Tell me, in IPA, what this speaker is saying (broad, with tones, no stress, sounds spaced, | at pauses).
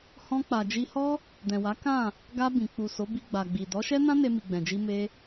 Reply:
h ɔ̃˧ k͡p a˨ d͡ʒ i˧ h ɔ˦ | d ɛ̃˨ w a˨˦ k ã˦˨ | ɡ a˧ b ĩ˨ k͡p u˨ s o˨˦ b i˧ ɡ͡b a˨ ɡ͡b i˨ d ɔ˨˦ ʃ ɛ˦ n ã˦ n e˧ m i˨ ɡ͡b ɛ̃˨ d͡ʒ i˧ m e˧